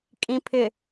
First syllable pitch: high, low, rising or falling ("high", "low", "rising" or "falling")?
low